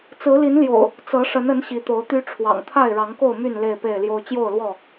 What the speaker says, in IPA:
t͡s ɹ̩˨˦ l i˨˦ n l j o̰˨˩ ʊ̯ | t͡s ɤ˨˦ ʂ ə˨˦ n ə˨˦ n ɕ i˨˦ t̪ o˨˦ ʊ̯ t̪ y˦ ʈ͡ʂʰ w ɑ̰˨˩ ŋ t̪ʰ a˥˨ ɪ̯ ɻ ɑ˨˦ ŋ k o˥˨ ʊ̯ m y˥˨ n l e˥˨ ɪ̯ p e˥˨ ɪ̯ l j o˦ ʊ̯ t͡ɕ j o˥˨ ʊ̯ l w ɔ˥˨

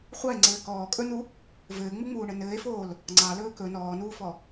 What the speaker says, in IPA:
χʷ ɑ e̯ ŋ͡ǀ ɘː k ɔː kʼ ɵ n u | v ɘː ŋ͡m u ŋ͡m uː ɳ ɘ n ɘː e̯ f oː l | ŋ͡ǀ ɑ l ɵː k ɵ n ɔː n uː f ɔ

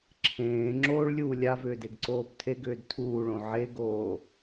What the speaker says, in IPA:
ǁʰ ẽː ŋ͡ǁ oː ɭ lʲ uː lʲ a v ʏː d e ɡ ǀ oː b tʰ e ɡ ʏː d tʰ uː ɭ õ ʕ e ɡ oː

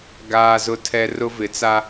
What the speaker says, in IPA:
ɡ aː˦ z ʊ˦ tʰ ɛ˦ r ʊ˦ v ɪ˨˦ t͡s a˦

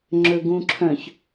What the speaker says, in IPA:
ŋ͡ǁ ɵ ɡ ũ ǁʰ œ̃ ç

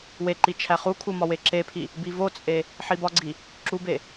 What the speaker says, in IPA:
w e ǃ i t͡ʃʰ æ χ u kʰ u m ɒ w e ǁ e pʰ i | b i v o t͡sʼ e | ħ i b ɒ ɡ͡ǀ i | ǁ u b e

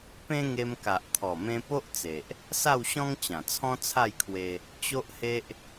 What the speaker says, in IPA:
p ẽ˦ ŋ e˧ m k a˨ ʔ t̪ʰ ɔ˨˩ m ẽ˧ p o˦ ʔ t͡s e˨ ʔ | s a˥˧ w ɕ ɔ̃˦ ŋ t͡ɕ ã˨˩ t͡sʰ ɔ̃˦ t͡sʰ a˥˧ j kʰ w e˧ | t͡ɕ o˦ ʔ h e˦ ʔ

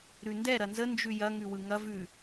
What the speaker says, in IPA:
ɾ ʉ n d ɛ ɾ ɐ n z ə n d͡ʒ ʉ j ɐ ŋ ʉ w ɯ ŋ ɐ v ʉ

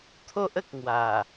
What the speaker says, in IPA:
t̪ʰ o˦ ʔ ə˨ k̚ ŋ w a˨˩

